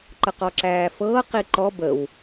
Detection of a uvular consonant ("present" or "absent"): present